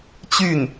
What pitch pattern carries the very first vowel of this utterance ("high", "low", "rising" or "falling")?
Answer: falling